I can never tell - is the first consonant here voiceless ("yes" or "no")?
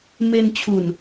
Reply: no